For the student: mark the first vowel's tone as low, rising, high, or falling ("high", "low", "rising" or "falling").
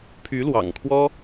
rising